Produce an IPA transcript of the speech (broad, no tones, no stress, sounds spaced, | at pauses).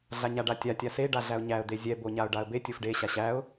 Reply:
ɮ a ɲ a ɖ a tʲ a tʲ a s e ɖ a ɮ æ ʊ̯ ɲ æ ə̯ d̪ e zʲ ɛ b o ɲ a ʊ̯ ɖ a ə̯ b e tʲ o f ɖ e ɕ a ɕ æ ʊ̯